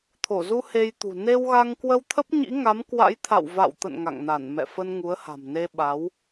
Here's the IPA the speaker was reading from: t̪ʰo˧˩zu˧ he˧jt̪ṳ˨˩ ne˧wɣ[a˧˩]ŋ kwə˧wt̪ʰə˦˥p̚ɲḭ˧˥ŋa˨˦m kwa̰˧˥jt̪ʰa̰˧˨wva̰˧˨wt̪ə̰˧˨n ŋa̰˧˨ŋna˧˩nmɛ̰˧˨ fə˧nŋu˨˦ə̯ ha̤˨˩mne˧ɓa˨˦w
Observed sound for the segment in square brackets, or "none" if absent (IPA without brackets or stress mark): a˧